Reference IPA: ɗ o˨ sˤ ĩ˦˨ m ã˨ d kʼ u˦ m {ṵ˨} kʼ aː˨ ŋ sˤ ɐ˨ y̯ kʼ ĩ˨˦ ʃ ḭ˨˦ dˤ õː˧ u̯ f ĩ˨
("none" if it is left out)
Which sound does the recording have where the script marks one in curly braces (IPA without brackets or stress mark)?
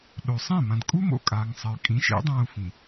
o̰˨